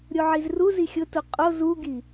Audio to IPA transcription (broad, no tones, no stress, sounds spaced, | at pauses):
ɾʲ o ʕ i z r u z i xʲ ʊ t u qʼ o z u ɡ i